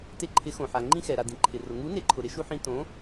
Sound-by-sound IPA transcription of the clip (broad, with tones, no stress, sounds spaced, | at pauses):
t e˧ ǃʰ ɪ˨˥ x õ˩ ħ a˩ ŋ͡ǃ ĩ˧ x ɛ˩ ɾ a˩ d ĩ˩ ǃʰ ɪ˩ r ʊ˩ ŋ u˨˥ n e˨˥ ǃʰ ʊ˩ ɾ ɪ˧ ʃ u˧ ħ ĩ˧ t õ˨˥